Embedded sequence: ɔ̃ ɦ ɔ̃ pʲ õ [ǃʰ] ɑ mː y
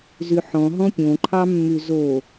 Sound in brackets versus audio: correct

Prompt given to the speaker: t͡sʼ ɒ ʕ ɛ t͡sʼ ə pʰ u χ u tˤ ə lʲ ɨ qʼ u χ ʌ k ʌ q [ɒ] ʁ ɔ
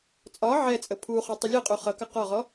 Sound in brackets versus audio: correct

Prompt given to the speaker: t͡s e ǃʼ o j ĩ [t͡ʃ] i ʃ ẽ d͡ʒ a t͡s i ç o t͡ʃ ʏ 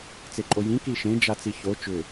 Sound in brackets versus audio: incorrect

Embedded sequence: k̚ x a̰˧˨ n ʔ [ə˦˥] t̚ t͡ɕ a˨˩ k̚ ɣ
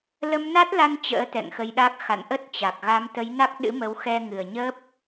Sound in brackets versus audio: correct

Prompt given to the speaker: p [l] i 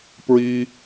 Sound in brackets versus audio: incorrect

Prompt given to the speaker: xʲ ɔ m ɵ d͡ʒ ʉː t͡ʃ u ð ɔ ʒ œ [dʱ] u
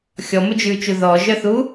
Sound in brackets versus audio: incorrect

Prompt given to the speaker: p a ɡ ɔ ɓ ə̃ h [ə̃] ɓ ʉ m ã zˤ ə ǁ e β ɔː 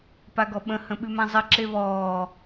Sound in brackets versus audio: correct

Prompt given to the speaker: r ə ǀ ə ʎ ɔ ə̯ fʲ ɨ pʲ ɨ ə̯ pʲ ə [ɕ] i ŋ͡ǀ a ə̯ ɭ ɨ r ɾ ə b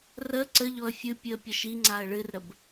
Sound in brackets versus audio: incorrect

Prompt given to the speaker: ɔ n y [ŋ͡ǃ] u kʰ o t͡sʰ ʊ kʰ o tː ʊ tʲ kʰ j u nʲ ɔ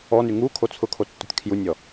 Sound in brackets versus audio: incorrect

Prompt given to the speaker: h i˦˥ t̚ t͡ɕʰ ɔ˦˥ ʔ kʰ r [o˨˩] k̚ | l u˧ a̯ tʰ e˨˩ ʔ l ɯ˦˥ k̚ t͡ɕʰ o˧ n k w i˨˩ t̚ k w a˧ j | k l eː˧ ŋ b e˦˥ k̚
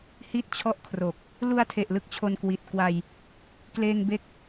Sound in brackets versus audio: correct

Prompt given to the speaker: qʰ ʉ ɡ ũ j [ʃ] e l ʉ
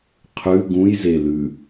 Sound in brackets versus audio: incorrect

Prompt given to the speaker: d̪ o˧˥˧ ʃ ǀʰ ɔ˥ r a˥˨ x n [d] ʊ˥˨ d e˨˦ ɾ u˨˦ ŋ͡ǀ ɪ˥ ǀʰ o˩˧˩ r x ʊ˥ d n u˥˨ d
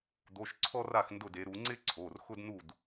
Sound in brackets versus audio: correct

